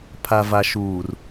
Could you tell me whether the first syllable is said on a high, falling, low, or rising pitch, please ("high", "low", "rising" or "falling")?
low